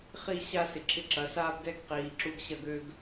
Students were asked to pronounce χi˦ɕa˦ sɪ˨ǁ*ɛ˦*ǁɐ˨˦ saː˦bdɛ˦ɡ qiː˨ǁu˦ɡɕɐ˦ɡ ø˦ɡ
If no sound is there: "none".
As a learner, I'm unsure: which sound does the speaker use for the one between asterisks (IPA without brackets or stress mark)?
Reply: ɪ˦